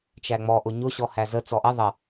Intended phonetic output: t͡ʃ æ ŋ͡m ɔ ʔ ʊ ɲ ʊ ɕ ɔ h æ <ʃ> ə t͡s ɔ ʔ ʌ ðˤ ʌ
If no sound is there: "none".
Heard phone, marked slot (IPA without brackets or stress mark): z